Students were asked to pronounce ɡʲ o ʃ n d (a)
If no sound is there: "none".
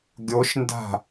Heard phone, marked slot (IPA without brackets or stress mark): a̤